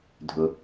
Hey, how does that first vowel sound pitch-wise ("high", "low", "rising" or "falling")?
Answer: low